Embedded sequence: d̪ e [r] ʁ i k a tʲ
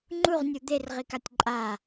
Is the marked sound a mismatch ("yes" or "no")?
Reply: no